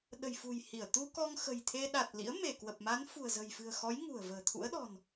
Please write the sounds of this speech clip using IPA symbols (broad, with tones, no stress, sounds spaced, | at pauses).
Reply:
ɗ ə̤˨˩ j f ṳ˨˩ j h i˧˩ ə̯ t̪ u˧ k ɔ˧ ŋ x ə̤˨˩ j t̪ʰ e˧ ɗ a˨˩ t̚ l ḭ˧˥ ə̯ m e˧˩ k w ə˨˩ p̚ m a˨˦ n f ṳ˨˩ ə̯ z ə̤˨˩ j f ɨ̤˨˩ ə̯ x ɔ˨˦ j ŋ ṳ˨˩ ə̯ v ə̤ː˨˩ t̪ʰ ṵ˧˥ ə̯ ɗ ɔ̤˨˩ n